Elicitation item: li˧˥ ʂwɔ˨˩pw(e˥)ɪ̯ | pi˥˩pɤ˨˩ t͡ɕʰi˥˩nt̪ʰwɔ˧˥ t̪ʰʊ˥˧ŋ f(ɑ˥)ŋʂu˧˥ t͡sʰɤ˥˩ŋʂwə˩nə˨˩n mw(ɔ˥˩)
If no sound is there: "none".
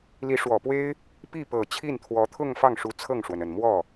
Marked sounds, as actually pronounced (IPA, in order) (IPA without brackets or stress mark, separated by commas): e˥, ɑ˥˩, ɔ˥˩